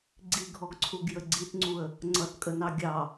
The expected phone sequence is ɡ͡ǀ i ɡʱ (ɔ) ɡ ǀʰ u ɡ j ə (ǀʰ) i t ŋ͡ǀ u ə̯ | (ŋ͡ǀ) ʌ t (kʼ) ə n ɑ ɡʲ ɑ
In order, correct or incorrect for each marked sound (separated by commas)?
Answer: correct, incorrect, correct, correct